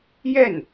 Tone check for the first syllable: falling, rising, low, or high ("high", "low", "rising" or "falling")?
falling